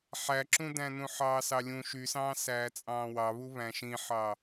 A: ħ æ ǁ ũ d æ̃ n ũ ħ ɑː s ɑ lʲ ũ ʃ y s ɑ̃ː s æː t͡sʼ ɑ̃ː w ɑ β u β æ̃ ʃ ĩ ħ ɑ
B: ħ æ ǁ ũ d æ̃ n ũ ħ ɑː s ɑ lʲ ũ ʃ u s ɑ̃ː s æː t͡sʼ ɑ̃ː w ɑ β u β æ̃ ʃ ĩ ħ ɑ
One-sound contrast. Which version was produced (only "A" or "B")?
A